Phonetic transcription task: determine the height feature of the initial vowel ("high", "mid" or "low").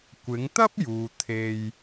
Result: high